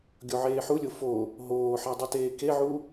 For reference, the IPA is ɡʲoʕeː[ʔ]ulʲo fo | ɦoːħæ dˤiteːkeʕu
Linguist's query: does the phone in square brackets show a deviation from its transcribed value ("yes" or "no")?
yes